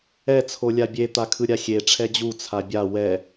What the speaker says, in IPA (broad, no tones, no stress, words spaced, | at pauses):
ɛ t͡sʰolʲabʲe t̪akʰɯɾʲaxʲe ʈ͡ʂʰɛd͡ʑu t͡sʰabʲa wɛ